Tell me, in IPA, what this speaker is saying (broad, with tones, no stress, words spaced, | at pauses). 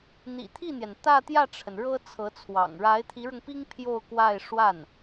n̪ḭ˨˩t̪ʰi˥˩n̪jɛ˩n t̪ä˥˧t̪jä˥˩ʈ͡ʂʰə˩n ɻɤ˥ t͡sʰɤ˧˥t͡sʰwɑ̰˨˩ŋ ɻa˧˥ɪ̯t̪ʰi˧˥ɻʊ˧ŋpi˥ŋ pʰjo˥˧ʊ̯kwa˥˧ɪ̯ ʂwa˥˩n